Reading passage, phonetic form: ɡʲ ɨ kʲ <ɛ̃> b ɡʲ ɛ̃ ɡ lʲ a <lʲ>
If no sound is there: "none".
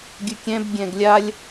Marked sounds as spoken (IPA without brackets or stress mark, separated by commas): ɛ̃, lʲ